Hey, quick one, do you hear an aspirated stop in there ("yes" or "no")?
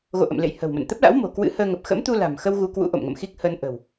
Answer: no